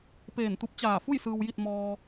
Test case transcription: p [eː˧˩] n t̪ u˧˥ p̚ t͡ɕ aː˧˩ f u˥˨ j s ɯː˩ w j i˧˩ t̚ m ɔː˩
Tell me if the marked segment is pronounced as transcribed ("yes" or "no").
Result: yes